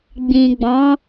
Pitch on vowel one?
low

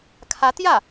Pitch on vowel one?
rising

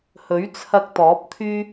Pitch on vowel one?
rising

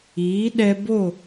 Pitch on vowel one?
rising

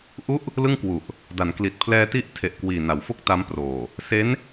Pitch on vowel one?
falling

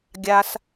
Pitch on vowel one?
high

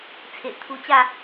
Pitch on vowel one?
low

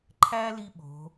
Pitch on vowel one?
high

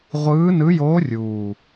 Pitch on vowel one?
rising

